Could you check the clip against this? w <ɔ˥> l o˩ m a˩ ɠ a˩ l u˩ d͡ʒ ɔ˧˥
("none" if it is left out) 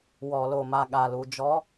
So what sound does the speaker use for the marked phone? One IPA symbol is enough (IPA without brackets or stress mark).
ɔ˩